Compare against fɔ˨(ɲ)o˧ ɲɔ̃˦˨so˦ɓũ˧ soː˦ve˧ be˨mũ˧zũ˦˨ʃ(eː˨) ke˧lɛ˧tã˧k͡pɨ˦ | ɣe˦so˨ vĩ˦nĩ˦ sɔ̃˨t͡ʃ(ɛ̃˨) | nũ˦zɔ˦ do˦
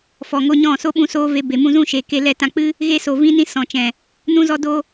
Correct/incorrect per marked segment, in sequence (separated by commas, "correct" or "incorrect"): incorrect, correct, correct